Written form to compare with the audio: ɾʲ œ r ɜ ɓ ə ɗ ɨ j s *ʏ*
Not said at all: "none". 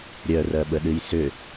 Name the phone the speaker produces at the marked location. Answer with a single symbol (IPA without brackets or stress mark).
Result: ʏ